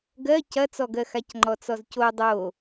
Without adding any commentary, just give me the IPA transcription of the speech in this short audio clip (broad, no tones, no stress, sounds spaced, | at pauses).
ɡ ɜ c ɐ t͡s ɔ ɡ ɜ x a c ŋ͡ǃ ɔ t͡s ɔ z c o dˤ o